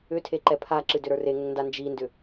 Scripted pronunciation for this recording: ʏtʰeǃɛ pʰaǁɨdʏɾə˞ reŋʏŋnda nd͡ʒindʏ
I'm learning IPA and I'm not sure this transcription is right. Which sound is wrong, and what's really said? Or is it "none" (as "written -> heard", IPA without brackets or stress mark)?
none